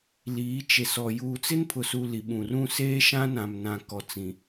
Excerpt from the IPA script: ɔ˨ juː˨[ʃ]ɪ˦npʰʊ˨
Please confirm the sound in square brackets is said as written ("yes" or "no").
no